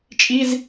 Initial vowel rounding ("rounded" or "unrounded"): unrounded